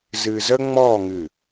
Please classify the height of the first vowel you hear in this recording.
high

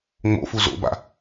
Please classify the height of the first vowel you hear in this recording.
mid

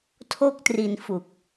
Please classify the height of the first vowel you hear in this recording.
mid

